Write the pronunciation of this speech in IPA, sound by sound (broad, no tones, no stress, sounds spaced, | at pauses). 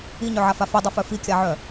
i ɲ œ ʕ a f a f i dˤ œ f œ f i kʲ a ʕ œ